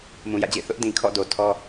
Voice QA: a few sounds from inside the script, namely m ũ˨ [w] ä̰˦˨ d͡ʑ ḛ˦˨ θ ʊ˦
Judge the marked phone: incorrect: j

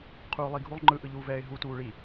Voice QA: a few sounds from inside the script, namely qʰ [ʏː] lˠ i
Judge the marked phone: incorrect: uː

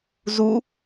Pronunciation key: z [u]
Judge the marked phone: correct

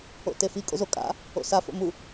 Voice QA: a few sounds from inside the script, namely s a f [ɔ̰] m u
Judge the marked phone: incorrect: o̰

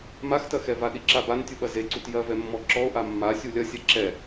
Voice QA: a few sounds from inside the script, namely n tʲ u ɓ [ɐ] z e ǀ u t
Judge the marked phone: correct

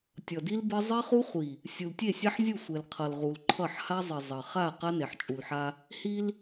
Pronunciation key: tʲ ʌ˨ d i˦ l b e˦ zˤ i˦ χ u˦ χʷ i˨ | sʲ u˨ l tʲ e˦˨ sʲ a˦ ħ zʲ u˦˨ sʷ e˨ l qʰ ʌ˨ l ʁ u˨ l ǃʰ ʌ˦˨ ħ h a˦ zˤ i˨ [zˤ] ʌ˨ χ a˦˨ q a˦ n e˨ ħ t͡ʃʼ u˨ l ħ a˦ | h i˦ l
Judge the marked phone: correct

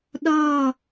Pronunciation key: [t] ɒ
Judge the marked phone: incorrect: ɗ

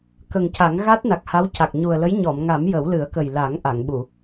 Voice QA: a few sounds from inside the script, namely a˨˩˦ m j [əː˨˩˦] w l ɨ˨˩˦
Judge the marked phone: incorrect: ə˨˩˦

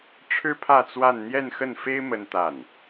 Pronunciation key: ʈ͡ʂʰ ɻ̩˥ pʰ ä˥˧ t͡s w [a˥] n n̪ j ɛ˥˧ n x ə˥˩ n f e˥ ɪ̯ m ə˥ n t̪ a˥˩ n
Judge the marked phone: incorrect: a˥˧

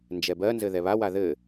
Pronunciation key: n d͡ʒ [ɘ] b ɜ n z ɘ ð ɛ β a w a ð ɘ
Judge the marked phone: incorrect: ɛ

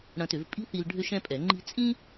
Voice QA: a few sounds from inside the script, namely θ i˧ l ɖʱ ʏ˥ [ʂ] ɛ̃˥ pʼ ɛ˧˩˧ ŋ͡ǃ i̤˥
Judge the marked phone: incorrect: ʃ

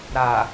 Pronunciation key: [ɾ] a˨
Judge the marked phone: correct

